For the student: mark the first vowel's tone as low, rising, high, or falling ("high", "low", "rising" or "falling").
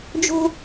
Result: high